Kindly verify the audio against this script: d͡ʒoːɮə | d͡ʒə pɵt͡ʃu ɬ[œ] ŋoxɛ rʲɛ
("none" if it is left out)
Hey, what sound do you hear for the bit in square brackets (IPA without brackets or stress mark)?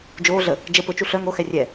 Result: œ